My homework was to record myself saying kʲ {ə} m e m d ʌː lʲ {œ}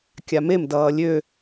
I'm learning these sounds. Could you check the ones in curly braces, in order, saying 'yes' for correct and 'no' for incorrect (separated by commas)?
no, no